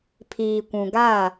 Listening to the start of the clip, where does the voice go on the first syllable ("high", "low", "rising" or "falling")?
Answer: low